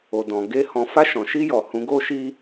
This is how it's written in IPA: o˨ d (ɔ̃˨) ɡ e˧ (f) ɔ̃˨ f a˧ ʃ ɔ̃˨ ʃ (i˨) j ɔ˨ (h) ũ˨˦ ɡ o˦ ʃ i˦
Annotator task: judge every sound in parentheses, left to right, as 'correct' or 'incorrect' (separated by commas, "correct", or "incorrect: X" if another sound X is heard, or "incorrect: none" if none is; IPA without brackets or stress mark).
correct, incorrect: h, incorrect: i˧, correct